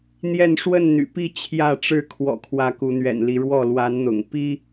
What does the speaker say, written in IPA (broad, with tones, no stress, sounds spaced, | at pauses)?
n̪ j ɛ˥˨ n ʂ w ə˥˨ n n̪ y̰˨˩ p i˥˨ t͡ɕʰ j ä˥˨ ʈ͡ʂ ɻ̩˥˨ kʰ w ɔ̰˨˩ kʰ w ä˨˦ k u˨˦ n̪ ɥ ɛ̰˨˩ n l i˨˦ ɻ w ɔ˥˨ l w a˨˦ n n̪ ʊ̰˨˩ ŋ p i˦